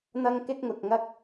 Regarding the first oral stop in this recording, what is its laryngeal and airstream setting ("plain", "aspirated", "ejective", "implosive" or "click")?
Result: plain